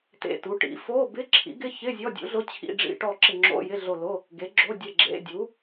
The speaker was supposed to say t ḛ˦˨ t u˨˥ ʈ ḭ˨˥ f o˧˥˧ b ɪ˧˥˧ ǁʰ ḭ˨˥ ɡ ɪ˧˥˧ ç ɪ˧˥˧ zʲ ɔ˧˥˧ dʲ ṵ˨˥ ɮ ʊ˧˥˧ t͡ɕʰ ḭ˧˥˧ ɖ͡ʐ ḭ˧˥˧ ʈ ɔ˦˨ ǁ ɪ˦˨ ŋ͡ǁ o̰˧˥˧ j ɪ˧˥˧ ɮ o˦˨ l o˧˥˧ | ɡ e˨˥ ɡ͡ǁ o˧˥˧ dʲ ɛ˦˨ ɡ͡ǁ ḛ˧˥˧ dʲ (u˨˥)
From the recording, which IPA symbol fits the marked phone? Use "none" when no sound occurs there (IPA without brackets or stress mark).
u˨˥